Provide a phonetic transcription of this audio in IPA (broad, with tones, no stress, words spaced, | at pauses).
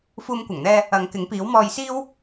fuː˧mkʷɐ˨˩ŋn̪ɛː˧ | ɐ˨˧ŋ kɪ˨˥ŋpiː˨˥w mɔː˧jsiː˥w